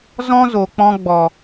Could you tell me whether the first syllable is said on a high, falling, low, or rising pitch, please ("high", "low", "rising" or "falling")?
high